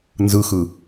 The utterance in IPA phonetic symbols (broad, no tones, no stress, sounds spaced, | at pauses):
n z ɯ x ɯ